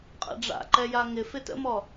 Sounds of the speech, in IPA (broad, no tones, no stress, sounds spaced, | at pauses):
qʼ ɛ̰ ɖ͡ʐ a̰ ǃ ɛ j a ŋ ɪ f ɪ t ə̰ m ɔ